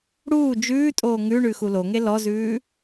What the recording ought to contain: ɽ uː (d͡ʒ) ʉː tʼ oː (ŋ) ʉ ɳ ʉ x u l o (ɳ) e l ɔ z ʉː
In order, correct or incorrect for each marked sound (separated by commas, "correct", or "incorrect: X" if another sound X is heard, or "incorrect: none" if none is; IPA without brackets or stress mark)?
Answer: correct, correct, incorrect: ŋ